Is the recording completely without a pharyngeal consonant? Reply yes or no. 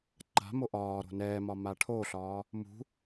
yes